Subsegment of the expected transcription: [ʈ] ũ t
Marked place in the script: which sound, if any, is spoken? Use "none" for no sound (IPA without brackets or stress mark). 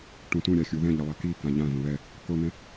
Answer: ʈ